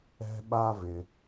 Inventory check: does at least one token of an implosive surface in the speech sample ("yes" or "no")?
yes